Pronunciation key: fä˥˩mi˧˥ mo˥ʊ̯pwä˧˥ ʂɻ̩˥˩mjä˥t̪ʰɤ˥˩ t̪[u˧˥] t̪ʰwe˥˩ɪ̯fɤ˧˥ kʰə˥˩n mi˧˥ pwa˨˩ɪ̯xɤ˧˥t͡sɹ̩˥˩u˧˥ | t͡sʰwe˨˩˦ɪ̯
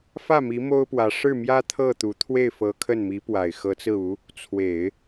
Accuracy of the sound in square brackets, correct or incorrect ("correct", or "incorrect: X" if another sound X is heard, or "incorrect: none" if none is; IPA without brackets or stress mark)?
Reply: correct